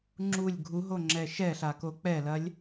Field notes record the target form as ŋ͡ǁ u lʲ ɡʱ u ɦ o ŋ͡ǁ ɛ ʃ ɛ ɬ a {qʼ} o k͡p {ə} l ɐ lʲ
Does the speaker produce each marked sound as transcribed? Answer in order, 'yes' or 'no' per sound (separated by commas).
no, no